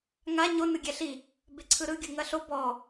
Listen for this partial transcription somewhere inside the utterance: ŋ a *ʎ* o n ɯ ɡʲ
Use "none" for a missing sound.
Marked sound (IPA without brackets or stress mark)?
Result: ɲ